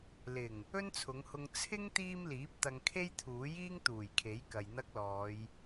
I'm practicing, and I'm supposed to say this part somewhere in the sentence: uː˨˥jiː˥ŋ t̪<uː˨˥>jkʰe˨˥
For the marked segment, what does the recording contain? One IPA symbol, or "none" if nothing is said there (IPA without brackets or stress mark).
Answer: uː˨˩